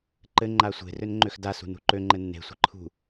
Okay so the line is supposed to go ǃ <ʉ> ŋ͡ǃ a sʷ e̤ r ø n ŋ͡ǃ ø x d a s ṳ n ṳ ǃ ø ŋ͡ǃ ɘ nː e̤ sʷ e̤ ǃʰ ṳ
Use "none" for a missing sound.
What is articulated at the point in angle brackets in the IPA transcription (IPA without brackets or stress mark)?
ɘ